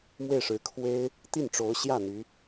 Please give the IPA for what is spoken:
m w e˥˩ ɪ̯ ʂ ɻ̩˧˥ kʰ w e˥ ɪ̯ | t̪ i˥˩ n ʈ͡ʂ o˧˥ ʊ̯ ɕ j ä˥˩ n̪ y˧˥

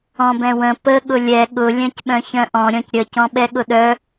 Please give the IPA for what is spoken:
ɔ̃ b ɛ̃ w ə̃ p ə ɠ ʊ lʲ ɛ ɠ ʊ lʲ œ̃ c ɓ œ̃ ç œ̃ ʔ ɔ̃ ɾʲ ɔ̃ c ɾʲ ə c ɔ̃ ɓ ɛ ɠ ʊ ɗ œ

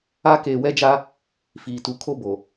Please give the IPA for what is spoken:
a˦ k eː˨ w ɛ˦ d͡ʒ a˦ | f iː˨ t u˨ kʰ o˦ b o˨

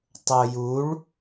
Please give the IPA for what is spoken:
tˤ o j u ɭ

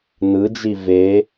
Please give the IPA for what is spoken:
n ɯ d͡ʒ i v e

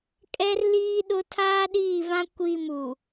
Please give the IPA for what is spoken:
kʼ ɛ˦ r l iː˦ ɗ ʊ˦ tʰ aː˦ ɗ iː˦˨ v ã˦ kʷ i˦˨ m u˨

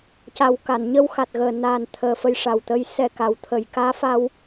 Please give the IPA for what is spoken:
c a˨˩ w k a˨˩˨ n ɲ ə˧ w x a˨˩ t̚ ɣ əː˨˩ n a˨˩ n t̪ʰ əː˨˩ f ə˧ j ʂ a˨˩ w t̪ ə˧˥ j s ɛ˧ k a˨˩˦ w t̪ʰ ə˨˩˨ j k aː˧˥ f a˧ w

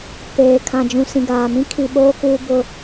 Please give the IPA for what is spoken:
p eː˨ kʰ ã˨ d͡ʒ ũ˨ s ĩ˨ ɡ aː˨ m ĩ˦ kʰ i˨ ɓ oː˦ k uː˦ b ʊ˦

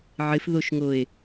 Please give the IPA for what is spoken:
ʕ ɪ f ð o ʃ ŋ o e̯

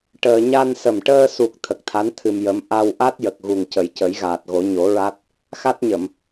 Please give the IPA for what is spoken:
ʈ əː˧ ɲ a˧ n s ə˨˩ m ʈ əː˧ s u˨˩ k̚ t̪ʰ ə˨˩ k̚ t̪ʰ a˧˥ n t̪ʰ ɨ˧ m j ə˧˥ m ʔ a˧ w ʔ a˦˥ t̚ j ə˨˩ k̚ ɣ u˨˩ ŋ c ə˨˩˦ j c ə˨˩˦ j ɣ aː˨˩ t̚ ɣ o˨˩˦ ɲ o˨˩˦ ɹ a˦˥ t̚ | x a˦˥ t̚ ɲ ə˨˩˨ m

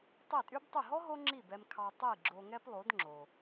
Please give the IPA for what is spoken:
tˤ i˥˩ tʼ y˥ b tˤ y˥˩ ɦ ɔ˥ ɦ o˥ ŋ͡ǁ i˥˩ b ɛ˧ m kʰ ɑ˧ tˤ i˥˩ ɡ͡ǁ o˧ ŋ ɛ˥ p lˠ o˩˥ d ŋ͡ǁ o˩

